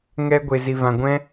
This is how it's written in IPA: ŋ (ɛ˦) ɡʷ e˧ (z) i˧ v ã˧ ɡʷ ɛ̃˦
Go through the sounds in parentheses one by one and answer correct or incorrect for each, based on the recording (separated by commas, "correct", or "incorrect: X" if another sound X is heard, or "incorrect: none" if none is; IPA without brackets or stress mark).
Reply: correct, correct